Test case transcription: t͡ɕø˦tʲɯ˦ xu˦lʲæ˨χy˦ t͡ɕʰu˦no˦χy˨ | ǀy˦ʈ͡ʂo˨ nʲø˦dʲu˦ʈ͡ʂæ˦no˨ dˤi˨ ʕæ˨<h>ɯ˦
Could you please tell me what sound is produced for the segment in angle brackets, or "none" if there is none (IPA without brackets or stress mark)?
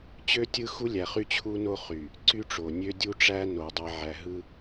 ɦ